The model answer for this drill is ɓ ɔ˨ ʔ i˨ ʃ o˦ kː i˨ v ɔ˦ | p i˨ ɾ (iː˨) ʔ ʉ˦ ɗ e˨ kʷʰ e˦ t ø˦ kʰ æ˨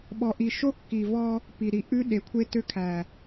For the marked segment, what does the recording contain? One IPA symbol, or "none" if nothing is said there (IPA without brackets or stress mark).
i˨